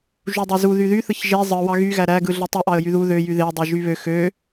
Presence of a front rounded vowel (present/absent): present